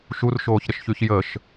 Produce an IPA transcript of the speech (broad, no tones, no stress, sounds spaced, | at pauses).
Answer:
ʃ u r ʃ oː ç ɾ ə ʃ ç y ç j ə ʃ